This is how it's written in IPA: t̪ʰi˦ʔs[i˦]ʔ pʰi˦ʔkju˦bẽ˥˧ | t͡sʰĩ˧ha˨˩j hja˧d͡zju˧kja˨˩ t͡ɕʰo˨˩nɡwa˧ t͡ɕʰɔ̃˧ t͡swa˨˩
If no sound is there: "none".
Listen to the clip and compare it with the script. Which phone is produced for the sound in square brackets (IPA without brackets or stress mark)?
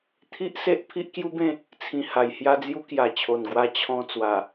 e˦